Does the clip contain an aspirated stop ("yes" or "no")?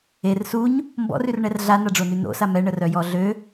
no